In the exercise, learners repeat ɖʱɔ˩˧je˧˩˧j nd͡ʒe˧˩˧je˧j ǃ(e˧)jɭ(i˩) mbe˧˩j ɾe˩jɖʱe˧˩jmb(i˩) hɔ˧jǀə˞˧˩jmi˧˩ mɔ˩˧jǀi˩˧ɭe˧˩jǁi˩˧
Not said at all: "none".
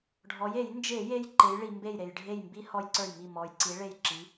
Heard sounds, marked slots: e˩˧, i˩, i˧

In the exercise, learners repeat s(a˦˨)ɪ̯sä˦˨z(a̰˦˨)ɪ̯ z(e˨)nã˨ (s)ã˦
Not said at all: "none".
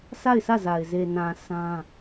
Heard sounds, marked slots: a˦˨, a˨, e˨, s

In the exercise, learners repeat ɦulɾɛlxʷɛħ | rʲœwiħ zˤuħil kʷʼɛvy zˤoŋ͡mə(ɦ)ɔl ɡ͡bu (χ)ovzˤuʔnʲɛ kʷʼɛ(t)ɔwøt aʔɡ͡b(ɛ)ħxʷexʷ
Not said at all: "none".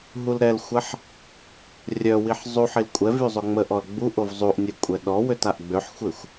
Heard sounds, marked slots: ʔ, ʔ, ɗ, ø

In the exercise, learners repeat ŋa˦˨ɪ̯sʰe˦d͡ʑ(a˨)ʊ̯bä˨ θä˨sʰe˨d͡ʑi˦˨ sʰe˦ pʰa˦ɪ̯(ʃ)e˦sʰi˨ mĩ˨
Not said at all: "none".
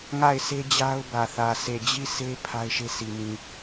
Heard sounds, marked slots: a˦, ʃ

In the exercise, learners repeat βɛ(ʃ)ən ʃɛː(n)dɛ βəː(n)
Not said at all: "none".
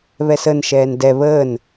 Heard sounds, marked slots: s, n, n

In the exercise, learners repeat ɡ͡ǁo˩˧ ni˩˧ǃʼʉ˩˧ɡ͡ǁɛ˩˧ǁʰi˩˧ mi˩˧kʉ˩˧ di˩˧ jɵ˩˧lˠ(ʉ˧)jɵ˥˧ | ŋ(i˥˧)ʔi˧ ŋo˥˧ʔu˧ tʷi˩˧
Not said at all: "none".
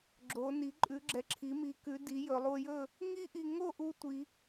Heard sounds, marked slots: u˧, i˥

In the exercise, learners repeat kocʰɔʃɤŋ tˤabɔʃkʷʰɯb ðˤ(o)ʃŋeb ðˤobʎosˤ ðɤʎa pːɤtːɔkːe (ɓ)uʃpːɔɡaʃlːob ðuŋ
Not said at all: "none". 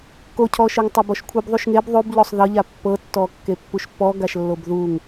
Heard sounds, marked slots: u, pː

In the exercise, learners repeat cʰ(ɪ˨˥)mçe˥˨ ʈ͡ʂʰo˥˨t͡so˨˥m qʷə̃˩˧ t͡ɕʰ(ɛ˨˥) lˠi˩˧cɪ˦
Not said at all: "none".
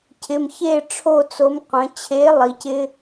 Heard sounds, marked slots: ɪ˩˧˩, e˨˥

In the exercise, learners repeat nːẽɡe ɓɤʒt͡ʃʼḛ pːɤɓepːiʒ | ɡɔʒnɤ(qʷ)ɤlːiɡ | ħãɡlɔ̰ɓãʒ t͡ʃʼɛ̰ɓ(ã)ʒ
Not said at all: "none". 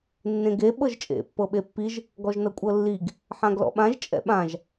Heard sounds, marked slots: kʷʼ, ã

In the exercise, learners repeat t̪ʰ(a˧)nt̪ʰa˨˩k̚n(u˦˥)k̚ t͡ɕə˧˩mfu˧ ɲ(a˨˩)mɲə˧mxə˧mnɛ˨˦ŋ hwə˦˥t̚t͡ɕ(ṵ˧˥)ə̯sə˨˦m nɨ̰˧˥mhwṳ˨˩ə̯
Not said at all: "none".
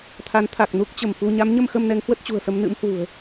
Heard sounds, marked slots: a˨˦, u˦˥, a˨˦, ṳ˨˩

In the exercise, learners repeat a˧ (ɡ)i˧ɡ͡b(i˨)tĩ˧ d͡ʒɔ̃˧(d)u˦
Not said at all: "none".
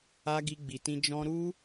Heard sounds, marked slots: ɡ, i˨, ɾ

